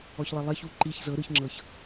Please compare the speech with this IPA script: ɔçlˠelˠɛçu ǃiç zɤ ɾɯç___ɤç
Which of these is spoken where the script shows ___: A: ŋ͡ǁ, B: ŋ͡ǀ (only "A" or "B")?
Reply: A